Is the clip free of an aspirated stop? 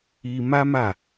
yes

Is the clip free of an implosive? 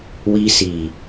yes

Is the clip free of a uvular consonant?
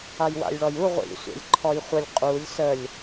no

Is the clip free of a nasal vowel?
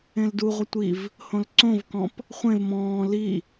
no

